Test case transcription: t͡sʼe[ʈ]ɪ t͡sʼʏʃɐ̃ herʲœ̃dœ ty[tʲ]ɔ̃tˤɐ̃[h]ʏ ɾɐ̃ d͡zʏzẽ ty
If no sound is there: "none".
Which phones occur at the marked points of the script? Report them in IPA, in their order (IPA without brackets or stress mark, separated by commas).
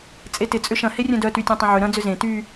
t, tʲ, ʕ